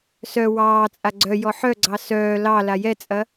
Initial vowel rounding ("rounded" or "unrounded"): rounded